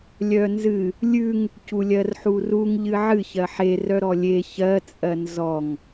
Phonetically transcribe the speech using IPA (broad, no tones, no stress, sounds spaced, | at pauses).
lʲ œ n z ɨ | lʲ ʉ ŋ | c u lʲ ɜ r ħ u r u ŋ ʎ ɨ ʕ ɨ ç ɜ ħ e r œ ɾ ɔ lʲ e ç ɜ t͡sʼ ɜ n z ɔ ŋ